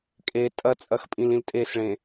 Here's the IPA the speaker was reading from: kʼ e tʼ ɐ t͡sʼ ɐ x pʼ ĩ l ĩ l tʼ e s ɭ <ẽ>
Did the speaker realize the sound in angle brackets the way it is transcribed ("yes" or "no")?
yes